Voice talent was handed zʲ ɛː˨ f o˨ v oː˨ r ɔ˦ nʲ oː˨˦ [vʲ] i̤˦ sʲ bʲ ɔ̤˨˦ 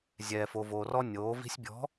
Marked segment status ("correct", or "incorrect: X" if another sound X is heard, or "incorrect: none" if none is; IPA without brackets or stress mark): incorrect: v